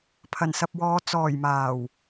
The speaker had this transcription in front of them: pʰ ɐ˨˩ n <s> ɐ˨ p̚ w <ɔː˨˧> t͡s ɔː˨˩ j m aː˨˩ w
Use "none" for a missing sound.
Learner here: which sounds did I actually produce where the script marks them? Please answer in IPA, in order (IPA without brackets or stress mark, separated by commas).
s, ɔː˨˧